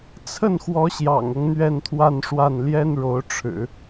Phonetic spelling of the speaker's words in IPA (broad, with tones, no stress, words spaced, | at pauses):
t͡sʰə˥˩nxwɔ˧˥ ɕjɑ̰˨˩ŋɤ˦ŋ n̪ɥɛ˥˧nt̪ʰwa˥˧nʂwa˥˩n ljɛ˥nɻo˧˥ʊ̯ʈ͡ʂʰɻ̩˨˩˦